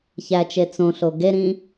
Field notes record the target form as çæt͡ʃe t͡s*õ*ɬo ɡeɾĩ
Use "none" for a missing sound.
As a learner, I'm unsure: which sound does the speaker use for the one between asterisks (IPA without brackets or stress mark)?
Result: õ